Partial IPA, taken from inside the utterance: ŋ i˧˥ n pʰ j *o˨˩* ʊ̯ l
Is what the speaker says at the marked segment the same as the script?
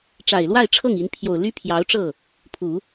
yes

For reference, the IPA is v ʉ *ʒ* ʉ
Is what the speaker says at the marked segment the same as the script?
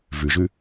yes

